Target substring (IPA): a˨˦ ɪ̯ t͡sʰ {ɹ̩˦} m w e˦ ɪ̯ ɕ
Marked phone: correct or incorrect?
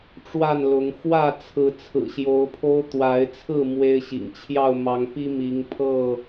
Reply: incorrect